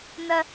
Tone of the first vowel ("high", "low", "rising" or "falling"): high